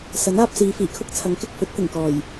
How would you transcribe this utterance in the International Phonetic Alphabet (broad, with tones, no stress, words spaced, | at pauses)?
sɐ˨˥naː˧p̚siː˨˧ fiː˨˩kʰʊ˥k̚t͡sʰɐ˨˥ŋ kɪ˧k̚fɵ˨˥t̚t̪ɪ˨˩ŋkɔː˨˩j